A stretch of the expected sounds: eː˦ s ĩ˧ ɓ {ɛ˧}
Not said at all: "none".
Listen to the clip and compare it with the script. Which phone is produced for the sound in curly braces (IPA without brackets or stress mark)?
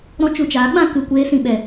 ɛ˧